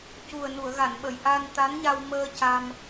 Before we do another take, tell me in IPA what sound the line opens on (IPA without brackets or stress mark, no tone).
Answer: c